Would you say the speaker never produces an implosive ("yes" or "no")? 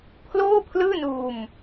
yes